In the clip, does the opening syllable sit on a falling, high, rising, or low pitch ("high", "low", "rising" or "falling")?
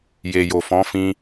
low